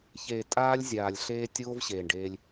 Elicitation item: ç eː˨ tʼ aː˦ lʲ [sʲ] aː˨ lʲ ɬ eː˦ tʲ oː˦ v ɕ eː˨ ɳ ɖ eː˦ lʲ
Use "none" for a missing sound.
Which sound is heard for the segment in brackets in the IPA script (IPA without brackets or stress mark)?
zʲ